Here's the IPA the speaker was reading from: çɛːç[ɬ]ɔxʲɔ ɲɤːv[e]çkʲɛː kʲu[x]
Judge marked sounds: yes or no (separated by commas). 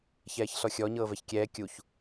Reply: yes, no, no